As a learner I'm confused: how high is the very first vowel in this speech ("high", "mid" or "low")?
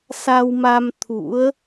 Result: low